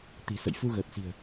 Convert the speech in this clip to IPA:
t̪ i̤˨˩ s ə̰˧˨ j f u˧ ɣ əː˨˩ t̚ s i̤˨˩ ə̯

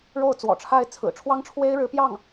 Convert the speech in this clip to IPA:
ɻ o˥˩ ʊ̯ t͡s w ɔ̰˨˩ ʈ͡ʂʰ a˥˩ ɪ̯ t͡sʰ ɹ̩˨˩ ʈ͡ʂʰ w ɑ˥ ŋ ʈ͡ʂʰ w e˥ ɪ̯ ɻ ɻ̩˧˥ p j ɑ˥˩ ŋ

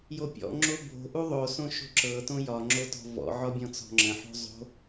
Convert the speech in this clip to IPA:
j o pʲ ɔ̰ ŋ͡ǁ o b o̤ ʔ u ðˤ o s õ ʃ o̤ ǁ ɤ t õ j ɒ ŋ͡ǁ o t ɔ̤ v ɔ̰ ʕ ɔ bʲ ɔ̃ t͡s ɔ̤ ŋ͡ǁ ə̃ ħ o̤ zˤ o̤

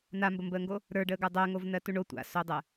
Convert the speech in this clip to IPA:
n a m b ə m b əː ŋ ɡ o | ɾ ə˞ ɖ əː ɡ ə˞ dˤ ɜ ŋ o v n ɜ t u ɳ o tʷ a̰ s o dˤ ɜ

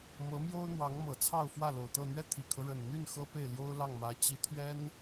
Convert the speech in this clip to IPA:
m ɤ˧˥ m j o˥ ʊ̯ n̪ w ɑ˧˥ ŋ m ɤ˨˩ t͡sʰ ɑ˥˧ ʊ̯ f w ä˥˩ l o˨˩ ʊ̯ t̪ ɤ˥˧ n̪ ɥ ɛ˥˩ t̪ʰ i˨˩ kʰ ɤ˦ ɻ ə˨˩ n n̪ y˥˩ n x ɤ˥ p e˥˩ ɪ̯ l j o˥ ʊ̯ l ɑ˥˩ ŋ m ä˧˥ t͡ɕ i˧˥ t̪ʰ ɥ ɛ˥ n

